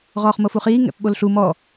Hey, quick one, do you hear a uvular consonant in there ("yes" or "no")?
yes